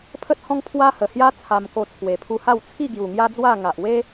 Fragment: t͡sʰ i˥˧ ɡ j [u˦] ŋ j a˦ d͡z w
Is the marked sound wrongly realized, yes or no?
yes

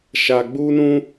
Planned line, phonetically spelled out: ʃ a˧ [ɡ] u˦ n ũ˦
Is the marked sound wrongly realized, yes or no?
yes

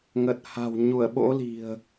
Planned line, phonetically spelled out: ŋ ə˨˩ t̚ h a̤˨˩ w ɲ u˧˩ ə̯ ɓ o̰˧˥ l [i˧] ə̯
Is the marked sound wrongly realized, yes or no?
yes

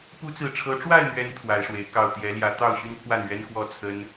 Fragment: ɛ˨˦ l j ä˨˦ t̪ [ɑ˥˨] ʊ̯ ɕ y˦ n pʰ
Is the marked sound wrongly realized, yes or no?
no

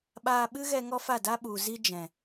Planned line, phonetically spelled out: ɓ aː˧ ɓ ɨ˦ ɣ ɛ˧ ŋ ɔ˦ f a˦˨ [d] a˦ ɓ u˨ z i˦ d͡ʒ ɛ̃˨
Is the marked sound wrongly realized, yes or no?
no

